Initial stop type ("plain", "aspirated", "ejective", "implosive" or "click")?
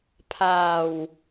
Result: aspirated